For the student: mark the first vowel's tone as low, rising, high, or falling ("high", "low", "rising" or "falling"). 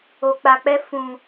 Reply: low